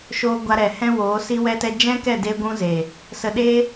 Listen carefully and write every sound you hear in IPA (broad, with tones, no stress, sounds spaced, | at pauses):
ʃ oː˧ ɡʷ a˧ ɾ ɛ˨ h ɛ̃˦ w oː˨˦ s i˦ w ɛ˦ t ɛ˦ d͡ʒ ɛ̃˦ k ɛ˦˨ d e˦ ɡʷ ũ˦ z e˨ | s ə˧ ɗ e˦